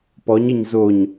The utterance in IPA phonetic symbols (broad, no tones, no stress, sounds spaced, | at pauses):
p ɔ ɲ ɘ ɲ z o ɲ